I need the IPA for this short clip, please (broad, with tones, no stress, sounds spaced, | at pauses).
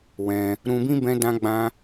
w ɛ̃˧ | ɾ ũ˧ b ĩ˦ b ɛ̃˧ d ã˧ ɡ͡b ã˧